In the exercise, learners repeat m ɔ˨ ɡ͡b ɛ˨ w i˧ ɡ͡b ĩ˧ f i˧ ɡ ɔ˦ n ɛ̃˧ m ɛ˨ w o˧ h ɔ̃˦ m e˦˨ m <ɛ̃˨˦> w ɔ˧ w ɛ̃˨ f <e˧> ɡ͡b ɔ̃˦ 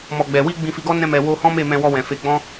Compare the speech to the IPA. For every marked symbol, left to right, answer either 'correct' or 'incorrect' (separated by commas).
incorrect, correct